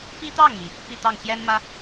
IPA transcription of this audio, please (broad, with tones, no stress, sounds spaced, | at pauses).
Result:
p i˥ t̪ ɑ˥˩ ŋ m i˩ | p i˥˧ t̪ ɑ˥˩ ŋ ɕ j ɛ˥ n m ä˥